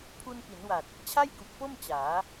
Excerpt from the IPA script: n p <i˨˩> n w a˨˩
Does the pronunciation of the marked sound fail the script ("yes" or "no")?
yes